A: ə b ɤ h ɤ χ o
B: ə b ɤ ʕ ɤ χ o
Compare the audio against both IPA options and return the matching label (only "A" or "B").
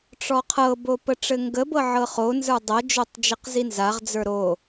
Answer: B